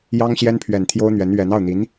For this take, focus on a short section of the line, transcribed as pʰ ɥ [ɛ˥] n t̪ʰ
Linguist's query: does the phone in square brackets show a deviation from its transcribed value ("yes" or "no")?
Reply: yes